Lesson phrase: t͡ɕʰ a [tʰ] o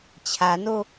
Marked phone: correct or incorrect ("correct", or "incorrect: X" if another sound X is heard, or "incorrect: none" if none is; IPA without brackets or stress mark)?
incorrect: n